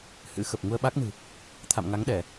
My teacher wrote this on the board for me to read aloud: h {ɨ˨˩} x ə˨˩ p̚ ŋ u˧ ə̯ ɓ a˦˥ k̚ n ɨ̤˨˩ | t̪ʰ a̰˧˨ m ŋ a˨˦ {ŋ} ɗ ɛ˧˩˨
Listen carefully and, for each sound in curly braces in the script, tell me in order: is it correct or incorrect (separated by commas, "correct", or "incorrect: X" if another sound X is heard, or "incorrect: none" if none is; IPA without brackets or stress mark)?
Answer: incorrect: ɨ̰˧˥, correct